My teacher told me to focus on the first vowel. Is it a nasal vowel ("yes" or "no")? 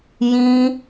yes